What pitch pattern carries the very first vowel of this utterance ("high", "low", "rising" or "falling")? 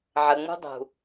low